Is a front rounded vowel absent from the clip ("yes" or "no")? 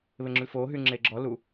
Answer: no